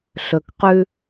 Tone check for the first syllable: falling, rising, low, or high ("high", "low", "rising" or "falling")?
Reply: low